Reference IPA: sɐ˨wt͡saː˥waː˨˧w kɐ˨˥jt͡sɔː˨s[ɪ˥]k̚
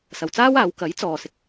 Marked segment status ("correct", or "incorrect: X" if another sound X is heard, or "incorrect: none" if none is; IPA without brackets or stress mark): incorrect: ɪ˨